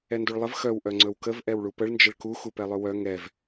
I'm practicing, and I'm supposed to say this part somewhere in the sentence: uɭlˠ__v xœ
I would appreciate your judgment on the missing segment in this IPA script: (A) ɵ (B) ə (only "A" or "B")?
B